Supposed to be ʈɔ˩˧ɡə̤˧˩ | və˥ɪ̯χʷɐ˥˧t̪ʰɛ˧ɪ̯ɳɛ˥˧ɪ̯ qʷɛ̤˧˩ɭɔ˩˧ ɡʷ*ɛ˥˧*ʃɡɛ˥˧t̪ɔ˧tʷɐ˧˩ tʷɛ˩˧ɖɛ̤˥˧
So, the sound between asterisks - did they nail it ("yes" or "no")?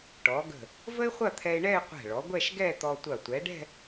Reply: yes